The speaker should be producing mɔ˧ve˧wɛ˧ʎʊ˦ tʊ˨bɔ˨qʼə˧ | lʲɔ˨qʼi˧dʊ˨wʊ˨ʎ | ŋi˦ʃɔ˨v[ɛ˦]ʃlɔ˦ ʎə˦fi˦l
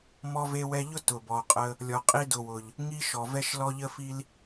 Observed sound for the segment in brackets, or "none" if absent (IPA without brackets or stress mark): ɛ˦